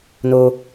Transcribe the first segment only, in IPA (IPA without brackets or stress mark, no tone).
n